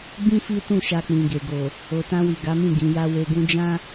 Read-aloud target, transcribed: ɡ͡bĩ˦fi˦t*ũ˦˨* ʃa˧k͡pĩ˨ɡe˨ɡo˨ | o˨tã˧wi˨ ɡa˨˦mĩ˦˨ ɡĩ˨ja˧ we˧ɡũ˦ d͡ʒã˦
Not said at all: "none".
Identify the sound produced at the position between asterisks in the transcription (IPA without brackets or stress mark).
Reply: ũ˦˨